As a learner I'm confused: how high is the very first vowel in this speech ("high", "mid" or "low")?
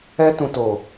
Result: mid